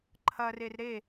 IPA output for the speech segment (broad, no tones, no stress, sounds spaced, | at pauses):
ǃʰ ɐ r e r ɾ e